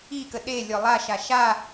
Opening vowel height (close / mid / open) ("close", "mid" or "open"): close